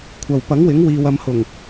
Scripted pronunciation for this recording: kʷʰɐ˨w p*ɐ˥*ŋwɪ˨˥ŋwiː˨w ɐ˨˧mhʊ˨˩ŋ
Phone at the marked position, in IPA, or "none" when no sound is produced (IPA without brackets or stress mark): ɐ˨˥